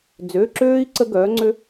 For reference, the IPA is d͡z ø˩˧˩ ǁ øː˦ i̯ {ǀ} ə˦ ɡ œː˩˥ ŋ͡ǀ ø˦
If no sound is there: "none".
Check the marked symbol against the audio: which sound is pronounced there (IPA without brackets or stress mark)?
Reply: ǀ